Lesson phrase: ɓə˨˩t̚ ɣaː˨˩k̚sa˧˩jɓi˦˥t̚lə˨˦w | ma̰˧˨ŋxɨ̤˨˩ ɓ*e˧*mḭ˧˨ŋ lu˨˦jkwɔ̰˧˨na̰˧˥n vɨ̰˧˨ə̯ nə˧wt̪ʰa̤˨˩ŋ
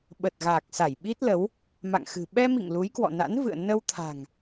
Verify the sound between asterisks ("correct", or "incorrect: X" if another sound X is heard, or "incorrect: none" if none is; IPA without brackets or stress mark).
incorrect: ɛ˧